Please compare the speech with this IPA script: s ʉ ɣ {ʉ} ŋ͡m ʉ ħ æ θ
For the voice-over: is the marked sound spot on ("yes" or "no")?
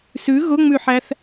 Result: no